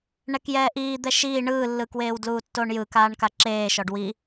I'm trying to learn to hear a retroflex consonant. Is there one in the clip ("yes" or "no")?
yes